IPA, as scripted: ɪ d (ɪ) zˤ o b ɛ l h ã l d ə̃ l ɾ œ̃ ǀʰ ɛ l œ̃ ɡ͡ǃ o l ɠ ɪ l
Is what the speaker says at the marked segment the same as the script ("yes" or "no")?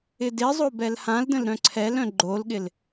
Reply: yes